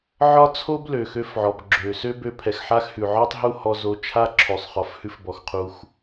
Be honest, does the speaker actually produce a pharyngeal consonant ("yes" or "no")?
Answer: yes